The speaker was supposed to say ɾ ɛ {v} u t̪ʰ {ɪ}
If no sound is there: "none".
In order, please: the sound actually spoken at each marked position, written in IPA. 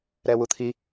w, i

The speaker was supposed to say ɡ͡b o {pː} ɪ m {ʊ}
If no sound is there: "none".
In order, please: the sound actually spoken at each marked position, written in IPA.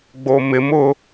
m, ʊ

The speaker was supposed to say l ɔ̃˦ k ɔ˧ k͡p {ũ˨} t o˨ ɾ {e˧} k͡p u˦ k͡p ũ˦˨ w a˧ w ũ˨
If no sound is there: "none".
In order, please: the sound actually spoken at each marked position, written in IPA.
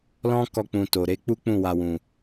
ũ˨, e˧

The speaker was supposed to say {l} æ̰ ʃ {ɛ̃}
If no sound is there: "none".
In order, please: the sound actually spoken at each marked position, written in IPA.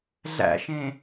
ɮ, ẽ

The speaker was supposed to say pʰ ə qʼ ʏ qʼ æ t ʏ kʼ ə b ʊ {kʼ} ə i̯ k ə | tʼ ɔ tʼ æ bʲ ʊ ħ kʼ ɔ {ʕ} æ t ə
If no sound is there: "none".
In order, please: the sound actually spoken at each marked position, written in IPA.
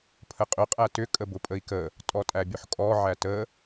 pʼ, ʕ

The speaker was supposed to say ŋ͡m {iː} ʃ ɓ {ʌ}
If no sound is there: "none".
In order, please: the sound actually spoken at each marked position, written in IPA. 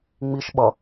i, ʌ

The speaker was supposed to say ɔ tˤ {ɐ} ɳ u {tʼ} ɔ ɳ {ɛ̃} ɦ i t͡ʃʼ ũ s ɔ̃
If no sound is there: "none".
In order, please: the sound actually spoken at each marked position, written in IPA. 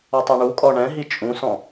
a, kʼ, ɛ̃

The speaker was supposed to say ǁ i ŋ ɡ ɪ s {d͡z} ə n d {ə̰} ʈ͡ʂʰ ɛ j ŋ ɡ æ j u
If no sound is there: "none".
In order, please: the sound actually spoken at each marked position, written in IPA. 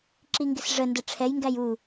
ʐ, ə

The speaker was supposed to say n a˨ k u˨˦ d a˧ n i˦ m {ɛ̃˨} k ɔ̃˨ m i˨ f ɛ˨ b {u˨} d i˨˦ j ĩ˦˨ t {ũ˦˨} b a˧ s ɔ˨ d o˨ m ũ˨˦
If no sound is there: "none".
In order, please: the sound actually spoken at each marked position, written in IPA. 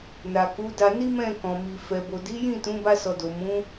ɛ̃˦˨, o˨, ũ˨˦

